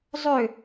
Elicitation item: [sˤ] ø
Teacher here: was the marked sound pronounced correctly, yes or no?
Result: no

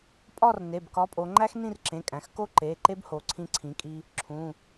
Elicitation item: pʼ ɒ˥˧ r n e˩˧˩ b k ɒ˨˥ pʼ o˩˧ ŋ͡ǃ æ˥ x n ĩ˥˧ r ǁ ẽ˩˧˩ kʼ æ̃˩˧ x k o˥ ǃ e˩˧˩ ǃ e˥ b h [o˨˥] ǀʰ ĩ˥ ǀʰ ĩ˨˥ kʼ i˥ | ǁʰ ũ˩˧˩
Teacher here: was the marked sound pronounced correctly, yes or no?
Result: yes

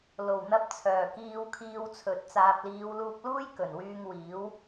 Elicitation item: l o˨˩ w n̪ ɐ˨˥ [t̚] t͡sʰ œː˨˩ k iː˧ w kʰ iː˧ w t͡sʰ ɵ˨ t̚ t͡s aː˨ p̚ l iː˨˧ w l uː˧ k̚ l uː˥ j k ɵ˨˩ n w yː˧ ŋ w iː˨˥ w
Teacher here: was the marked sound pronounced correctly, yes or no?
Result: no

